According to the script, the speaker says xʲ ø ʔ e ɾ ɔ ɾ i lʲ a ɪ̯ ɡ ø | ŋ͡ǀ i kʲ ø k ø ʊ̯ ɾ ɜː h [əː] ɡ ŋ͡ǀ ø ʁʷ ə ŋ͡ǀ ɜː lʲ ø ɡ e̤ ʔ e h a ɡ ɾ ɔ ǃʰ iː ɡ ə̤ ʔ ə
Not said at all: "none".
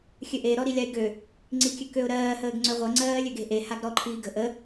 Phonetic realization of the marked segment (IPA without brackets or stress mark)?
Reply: əː